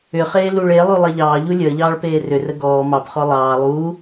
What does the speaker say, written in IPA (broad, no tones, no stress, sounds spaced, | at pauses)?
ʏ χ eː l u ɭ e lˠ u lˠ e ʎ ɑː ʎ u lʲ əː ʎ ɑː ɭ p eː r ʏ r ə ɡ ɔː m ɑ p χ ɔ lˠ ɑː lˠ uː